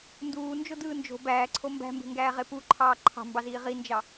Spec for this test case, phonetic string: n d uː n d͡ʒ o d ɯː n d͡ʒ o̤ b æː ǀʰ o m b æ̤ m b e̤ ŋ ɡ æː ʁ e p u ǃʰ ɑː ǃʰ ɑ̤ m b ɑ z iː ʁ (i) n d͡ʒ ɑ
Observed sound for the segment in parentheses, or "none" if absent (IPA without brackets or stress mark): i